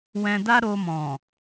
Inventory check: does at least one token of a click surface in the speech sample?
no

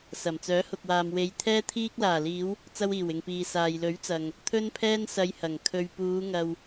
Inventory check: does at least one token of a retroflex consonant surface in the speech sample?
no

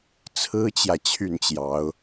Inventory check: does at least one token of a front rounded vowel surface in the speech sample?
yes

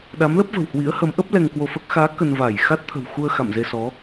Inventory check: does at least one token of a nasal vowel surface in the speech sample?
no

